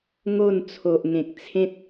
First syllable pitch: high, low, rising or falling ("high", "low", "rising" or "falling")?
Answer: falling